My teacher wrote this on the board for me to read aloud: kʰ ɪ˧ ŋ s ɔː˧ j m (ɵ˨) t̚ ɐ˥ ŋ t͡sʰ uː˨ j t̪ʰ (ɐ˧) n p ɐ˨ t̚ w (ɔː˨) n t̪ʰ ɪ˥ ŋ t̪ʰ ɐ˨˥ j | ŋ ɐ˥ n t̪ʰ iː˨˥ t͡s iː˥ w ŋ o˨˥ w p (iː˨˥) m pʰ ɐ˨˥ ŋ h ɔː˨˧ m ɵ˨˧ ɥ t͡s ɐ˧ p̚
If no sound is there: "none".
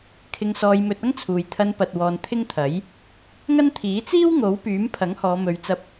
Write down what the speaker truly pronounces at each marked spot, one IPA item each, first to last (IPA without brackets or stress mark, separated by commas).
ɵ˧, ɐ˧, ɔː˨, yː˨˥